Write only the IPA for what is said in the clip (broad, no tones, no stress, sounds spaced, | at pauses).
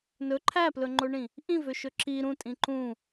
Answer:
n ɵ ǃʰ æ p l ɵ ŋ͡ǃ o ɳ ĩ | ʔ ĩ v ø ʃ ɵ ǁ i ɾ ũ tʼ ĩ ǃ ũ